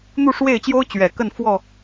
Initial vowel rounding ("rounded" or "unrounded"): rounded